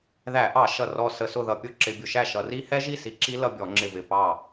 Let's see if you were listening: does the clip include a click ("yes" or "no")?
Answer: yes